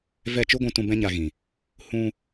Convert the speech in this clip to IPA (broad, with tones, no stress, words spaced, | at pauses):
vɛ˦˨t͡ʃu˦ɡʷũ˧ tũ˧ bɛ̃˦ɲa˧ɣĩ˨ | hũ˧